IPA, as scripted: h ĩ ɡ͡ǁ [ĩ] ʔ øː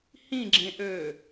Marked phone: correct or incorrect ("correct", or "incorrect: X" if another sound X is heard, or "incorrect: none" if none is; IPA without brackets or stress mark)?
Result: incorrect: ẽ